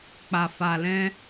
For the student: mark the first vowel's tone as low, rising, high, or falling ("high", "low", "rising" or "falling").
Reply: low